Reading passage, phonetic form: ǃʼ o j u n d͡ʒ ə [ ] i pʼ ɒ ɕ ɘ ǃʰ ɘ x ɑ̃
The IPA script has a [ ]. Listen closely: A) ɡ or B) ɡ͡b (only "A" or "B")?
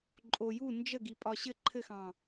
A